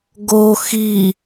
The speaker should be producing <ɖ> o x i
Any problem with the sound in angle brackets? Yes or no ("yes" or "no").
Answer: yes